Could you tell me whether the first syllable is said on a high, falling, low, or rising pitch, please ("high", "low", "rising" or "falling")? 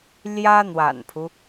high